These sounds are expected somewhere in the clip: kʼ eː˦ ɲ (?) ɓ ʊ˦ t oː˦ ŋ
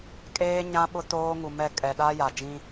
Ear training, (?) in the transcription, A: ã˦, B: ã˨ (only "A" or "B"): A